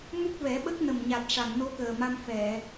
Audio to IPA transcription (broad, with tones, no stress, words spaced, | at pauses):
mu˦˥k̚vɛ˨˩˦ɓə˦˥k̚ nə˨˩mɲa˨˩t̚ ʂa˨˩˨ŋno˧˥kəː˨˩ma˧m fɛ˨˩˨